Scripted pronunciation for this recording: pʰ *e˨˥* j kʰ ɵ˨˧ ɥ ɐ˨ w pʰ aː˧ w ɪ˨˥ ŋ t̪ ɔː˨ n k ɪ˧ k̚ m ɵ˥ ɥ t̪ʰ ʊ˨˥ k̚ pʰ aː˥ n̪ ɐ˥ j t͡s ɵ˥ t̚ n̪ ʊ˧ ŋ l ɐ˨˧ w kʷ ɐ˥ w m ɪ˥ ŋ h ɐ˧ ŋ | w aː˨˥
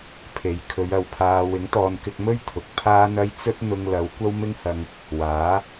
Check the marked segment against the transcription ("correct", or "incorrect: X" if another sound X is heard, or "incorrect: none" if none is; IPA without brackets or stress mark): incorrect: e˨